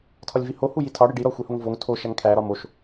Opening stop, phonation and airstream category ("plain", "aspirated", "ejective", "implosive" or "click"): aspirated